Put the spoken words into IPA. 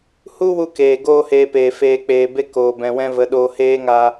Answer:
h u˦ w u˧ k eː˨ ɡ oː˦ h eː˧ p eː˨ f eː˧ k͡p eː˨ b e˦ k oː˨ b ɛ̃˨ w ɛ̃˦ v ə˨˦ ɗ oː˧ h eː˦ ŋ aː˧

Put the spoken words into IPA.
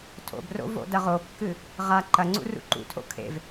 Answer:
tʰ o̰ b r o̰ v o̰ d ɐ ʁ o kː ɨ | ʁ a ǃ ɐ ŋ͡ǀ ṵ r ṵ ǃ ṵ tʰ o̰ kʰ ḛ v

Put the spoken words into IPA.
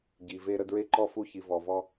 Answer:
ɟ i˨ v e˦ ɾ ə˦ d ɹ e˦ ǃ ɔ˦ f u˦˨ ç i˨ v ɔ˨ v ɔ˦

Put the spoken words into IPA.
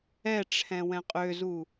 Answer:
ɛ ʈ͡ʂʰ ɛ̃ w ɛ̃ qʼ ø z u

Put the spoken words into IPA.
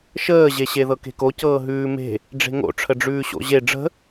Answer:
ʃ əː ʑ e ɕ e ð ɤ k e̤ k o c ɤː ɦ ʉː m e̤ | ɖ͡ʐ e̤ ŋ o̰ ʈ͡ʂʰ ə ɖ͡ʐ ʉː ɕ o̰ ʑ e ɖ͡ʐ ə̤

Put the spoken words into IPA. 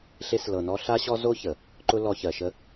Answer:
ɬ e˧ s l ɤ˨ n ɔ˧ ɬ a˦ ɕ ɔ˦ z o˦ ç ə˨ | ǃ ʊ˦ l ɔ˧ ç ɜ˨ ʃ ə˦

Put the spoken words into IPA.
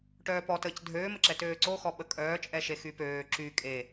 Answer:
ʈ œː p ɔ t əː c dʱ øː m ə ǁ ɛ t øː ǀ o x ɔ ɓ ə kʼ œː t͡ʃʼ ɛ ʃ e x y p øː ǁ y kʼ e

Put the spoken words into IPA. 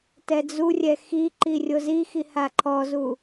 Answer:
t ɛ d͡z u rʲ ɛ x i ǃ i rʲ o z i x i h a ǃʰ ɔ z u

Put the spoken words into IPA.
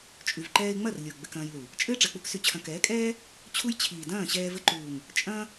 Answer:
t͡ʃʼ y˨ v ǃ ɛː˧ ɪ̯ ŋ͡m ɐ˦˨ r lʲ o˨ ɡ͡b ɘ˧ k ɐ̃ː˧ j l u˨ | t͡ʃʼ ɘ˦ ɪ̯ ʈ͡ʂ ɜ˨ k͡p u˦ k s y˧ t͡ɕʰ ɐ̃˧ k ɛː˨˦ kʼ ɛː˦ | t͡ɕʰ u˦ j t͡ɕʰ iː˨ d ɐ̃ː˦˨ ɕ ɛː˧ v ɘ˧ ǃ uː˨ ŋ | t͡ʃʼ ɐ̃ː˦

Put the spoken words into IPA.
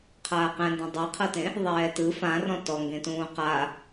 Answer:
qʰ aː q ɛ̃ n d ɔ̃ dˤ ɯ qʰ ɤ t ẽ | ðˤ ɛː t ɯ f ã r ɔ̃ t ɔ ŋ ɡ ẽ t ũː q a

